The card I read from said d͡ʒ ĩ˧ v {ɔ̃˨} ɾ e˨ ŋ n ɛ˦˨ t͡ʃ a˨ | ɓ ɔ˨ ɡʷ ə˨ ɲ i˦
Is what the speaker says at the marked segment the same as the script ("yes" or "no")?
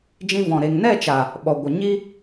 yes